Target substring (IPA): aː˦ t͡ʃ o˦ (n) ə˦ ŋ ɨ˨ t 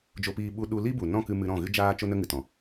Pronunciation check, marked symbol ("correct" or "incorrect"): correct